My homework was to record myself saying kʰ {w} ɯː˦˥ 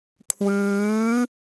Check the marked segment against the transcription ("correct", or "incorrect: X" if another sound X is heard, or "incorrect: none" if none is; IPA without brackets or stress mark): correct